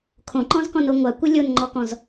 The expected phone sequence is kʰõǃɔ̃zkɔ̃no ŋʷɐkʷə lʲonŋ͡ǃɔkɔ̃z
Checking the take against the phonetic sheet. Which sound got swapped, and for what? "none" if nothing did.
ɐ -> a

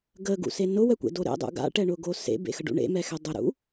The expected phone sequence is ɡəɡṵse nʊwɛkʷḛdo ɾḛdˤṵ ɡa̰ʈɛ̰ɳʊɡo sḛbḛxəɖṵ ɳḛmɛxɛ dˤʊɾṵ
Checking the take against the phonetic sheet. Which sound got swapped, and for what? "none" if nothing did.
ɛ̰ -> ɛ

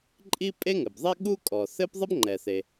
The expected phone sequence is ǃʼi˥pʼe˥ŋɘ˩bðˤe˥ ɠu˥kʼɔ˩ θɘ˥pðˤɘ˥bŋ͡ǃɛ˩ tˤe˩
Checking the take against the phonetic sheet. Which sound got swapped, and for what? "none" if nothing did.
tˤ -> θ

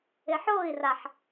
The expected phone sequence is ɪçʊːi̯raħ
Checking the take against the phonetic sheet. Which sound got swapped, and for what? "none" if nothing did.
ç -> ħ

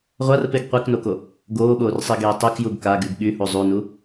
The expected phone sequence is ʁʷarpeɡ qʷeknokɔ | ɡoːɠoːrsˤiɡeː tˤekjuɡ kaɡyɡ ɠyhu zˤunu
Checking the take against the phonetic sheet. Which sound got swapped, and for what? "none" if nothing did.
ɔ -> o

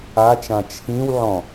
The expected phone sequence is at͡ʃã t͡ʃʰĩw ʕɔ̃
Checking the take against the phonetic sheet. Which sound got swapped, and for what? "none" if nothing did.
none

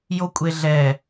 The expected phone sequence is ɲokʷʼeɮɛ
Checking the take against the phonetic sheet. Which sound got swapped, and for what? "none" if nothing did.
ɲ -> j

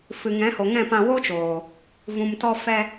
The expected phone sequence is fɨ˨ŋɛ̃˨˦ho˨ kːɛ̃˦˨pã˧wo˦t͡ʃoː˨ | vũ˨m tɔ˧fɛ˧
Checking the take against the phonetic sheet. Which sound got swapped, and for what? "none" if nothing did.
kː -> ŋ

